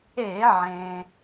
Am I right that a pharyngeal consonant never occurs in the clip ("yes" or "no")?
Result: no